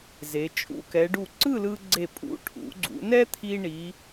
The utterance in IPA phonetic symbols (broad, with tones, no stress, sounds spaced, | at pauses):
z e˩˧ t͡ʃʼ ṵ˧ k ɛ˩˧ ɖ u˧˩ ǀ ɯ˥˧ l ɯ˧ ɡ͡ǀ e˧˩ pʼ ṵ˧ ʈʰ ṵ˩˧ ɡ͡ǀ ṵ˩˧ n ɛ˥ t̪ʰ i˧ ɳ i˩˧